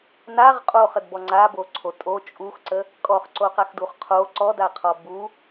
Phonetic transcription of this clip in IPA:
naʁ qʼoχədbɔ ŋ͡ǀaboǀʰo tʼo t͡ʃʼuxǀə | kʼɔχǀoqaxduχ qʰo ǀɔdaqʰɔ bu

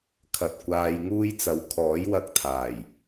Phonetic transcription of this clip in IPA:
kʰɐ˨t̚ kʷaː˨j ŋuː˥jt͡sɐ˨˧w kʰɔː˨˥jwɐ˧k̚t̪ʰaː˨˩j

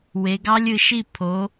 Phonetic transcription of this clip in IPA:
we˩˧ɡɑ˦˥lʲɯ˩˧ʃi˥˩ pʰo˩˧

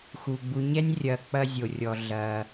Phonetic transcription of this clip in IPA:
xu˧ ɡ͡bu˧ɲɛ˦nʲ rʲɐ˧ k͡pɐ˦zʲo˧rʲɔ˧ ɮɐ˧

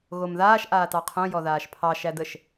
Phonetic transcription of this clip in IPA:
ɣomðaːʃ ʔaːtɑqʰõ jɔðaːʃpʰɑ ʃædəʃ

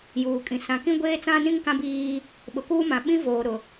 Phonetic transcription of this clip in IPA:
juː˨kʼĩ˨ sã˨kĩ˦ ɡʷeː˦t͡sã˦nĩ˦ŋ kã˦biː˦ | ɓʊ˨kuː˦mã˨ ɓĩ˦ voː˨ɾʊ˨

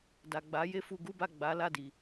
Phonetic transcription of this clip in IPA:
da˨ɡ͡ba˨˦je˦ fu˧ɡu˦ba˦˨ɡ͡ba˨˦ la˦˨di˨

